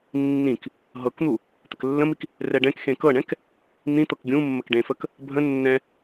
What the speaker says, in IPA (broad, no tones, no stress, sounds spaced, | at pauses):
nː ĩ k | ɦ ɤ k n̪ u | t̪ ə k lː ə̃ m i k | r ɛ ɖ ɛ̃ k x ẽ k ɤ ɳ ɛ̃ k | n̪ ĩ t̪ ɤ k ɡʲ ũ mː ə k ɖ ẽ f ə k | bʱ ə̃ nː ɛ̃